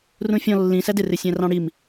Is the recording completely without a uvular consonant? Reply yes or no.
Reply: yes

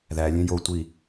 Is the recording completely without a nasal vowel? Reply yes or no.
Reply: no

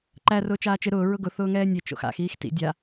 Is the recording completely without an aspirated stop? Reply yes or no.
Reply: yes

